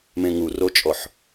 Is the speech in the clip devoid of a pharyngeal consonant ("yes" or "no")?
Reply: no